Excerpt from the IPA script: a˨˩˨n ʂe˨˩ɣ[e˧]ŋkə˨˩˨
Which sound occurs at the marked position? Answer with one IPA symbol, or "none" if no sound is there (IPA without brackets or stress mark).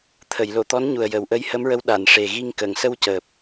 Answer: i˧